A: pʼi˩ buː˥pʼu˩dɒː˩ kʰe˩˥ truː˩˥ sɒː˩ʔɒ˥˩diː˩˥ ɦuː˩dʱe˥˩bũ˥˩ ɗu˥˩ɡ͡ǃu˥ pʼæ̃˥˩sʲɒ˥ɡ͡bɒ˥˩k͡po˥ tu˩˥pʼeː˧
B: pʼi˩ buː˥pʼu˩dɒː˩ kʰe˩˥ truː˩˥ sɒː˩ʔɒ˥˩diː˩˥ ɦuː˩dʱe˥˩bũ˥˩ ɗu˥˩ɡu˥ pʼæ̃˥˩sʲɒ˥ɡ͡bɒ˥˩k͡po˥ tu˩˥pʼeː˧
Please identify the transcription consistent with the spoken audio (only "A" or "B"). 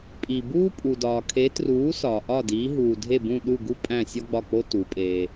B